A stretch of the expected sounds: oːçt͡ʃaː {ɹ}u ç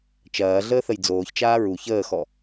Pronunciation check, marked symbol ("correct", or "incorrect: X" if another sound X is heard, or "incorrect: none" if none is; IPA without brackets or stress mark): correct